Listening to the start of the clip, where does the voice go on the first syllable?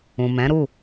low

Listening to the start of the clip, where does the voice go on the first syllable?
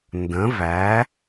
rising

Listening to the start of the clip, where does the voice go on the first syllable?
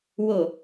low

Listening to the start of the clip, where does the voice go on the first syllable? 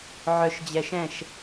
low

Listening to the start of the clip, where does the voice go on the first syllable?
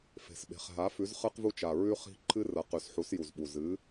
low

